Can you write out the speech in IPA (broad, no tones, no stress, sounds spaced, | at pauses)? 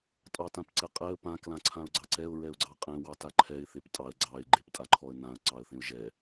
tʼ ɑ t ã p ǀ ɛ qʼ ɛ ə̯ p ã k l ã ǀʰ ã ʊ̯ ɡ͡ǀ ɑ ǀ ɛ ʊ̯ ɹ ɛ ʊ̯ ɡ͡ǀ ɑ qʼ ẽ w ɑ t a ǃʰ ɛ ɪ̯ θ e p tʼ ɑ ə̯ ɡ͡ǀ ɑ ɪ̯ ɡ͡ǃ e p tʼ a ǃʰ ɔ ə̯ n ã ə̯ ǀ ɑ ə̯ θ ẽ ʊ̯ ʒ ɛ